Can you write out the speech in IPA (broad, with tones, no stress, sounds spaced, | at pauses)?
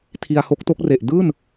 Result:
tʰ i˧ a̯ h o˦˥ k̚ t o˦˥ k̚ r e˨˩ ʔ d ɯː˥˩ n